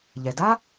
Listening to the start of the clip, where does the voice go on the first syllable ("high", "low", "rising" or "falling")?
low